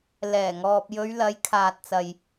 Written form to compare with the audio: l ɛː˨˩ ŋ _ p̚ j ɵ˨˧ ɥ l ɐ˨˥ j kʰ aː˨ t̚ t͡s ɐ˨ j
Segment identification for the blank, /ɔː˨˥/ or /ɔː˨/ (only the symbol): ɔː˨